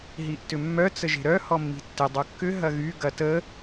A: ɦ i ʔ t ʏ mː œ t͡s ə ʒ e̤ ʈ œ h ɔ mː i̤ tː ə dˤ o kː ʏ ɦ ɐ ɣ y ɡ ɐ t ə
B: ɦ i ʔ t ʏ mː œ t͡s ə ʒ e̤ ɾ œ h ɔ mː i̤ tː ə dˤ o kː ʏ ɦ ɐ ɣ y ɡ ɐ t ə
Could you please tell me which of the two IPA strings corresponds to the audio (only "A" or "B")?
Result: B